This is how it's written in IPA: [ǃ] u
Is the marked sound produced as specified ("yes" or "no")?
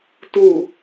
no